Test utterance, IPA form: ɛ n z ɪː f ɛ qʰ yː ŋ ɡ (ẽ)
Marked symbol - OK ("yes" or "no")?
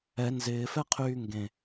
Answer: yes